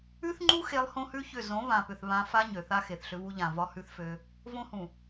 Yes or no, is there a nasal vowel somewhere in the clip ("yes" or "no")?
yes